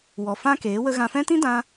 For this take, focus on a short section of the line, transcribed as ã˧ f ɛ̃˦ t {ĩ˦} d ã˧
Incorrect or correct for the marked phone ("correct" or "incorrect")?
correct